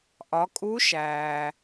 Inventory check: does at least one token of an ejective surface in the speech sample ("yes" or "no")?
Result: yes